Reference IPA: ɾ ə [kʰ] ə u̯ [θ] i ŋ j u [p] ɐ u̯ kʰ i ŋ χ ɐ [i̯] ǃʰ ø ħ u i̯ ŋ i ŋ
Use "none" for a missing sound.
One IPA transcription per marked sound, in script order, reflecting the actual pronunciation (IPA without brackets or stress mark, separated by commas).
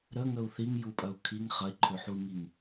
ŋ, θ, pʼ, i̯